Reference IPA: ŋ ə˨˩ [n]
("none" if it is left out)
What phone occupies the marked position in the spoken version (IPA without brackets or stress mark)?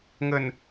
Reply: n